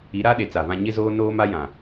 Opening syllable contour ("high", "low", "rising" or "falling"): rising